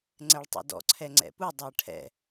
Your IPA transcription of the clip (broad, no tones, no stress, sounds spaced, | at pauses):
ŋ͡ǀ ɛ ɭ tˤ ɛ̰ d ɔ̰ ǀʰ ɛ ŋ͡ǀ ɛ̰ p u dˤ ɛ ɐ̯ ʈʰ ɛ̰